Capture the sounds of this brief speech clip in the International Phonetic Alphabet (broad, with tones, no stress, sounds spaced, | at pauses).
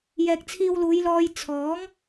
j ɛː˨ k̚ t͡sʰ iː˧ w l uː˨˧ j l ɔː˧ j t͡sʰ ɔː˨˥ ŋ